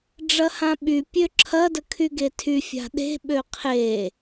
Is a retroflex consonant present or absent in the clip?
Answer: present